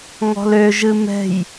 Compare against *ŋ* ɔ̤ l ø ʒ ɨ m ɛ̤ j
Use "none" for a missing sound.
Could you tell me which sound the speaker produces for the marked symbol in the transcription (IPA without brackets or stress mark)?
ŋ